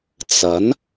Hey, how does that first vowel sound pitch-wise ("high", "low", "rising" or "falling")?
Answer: rising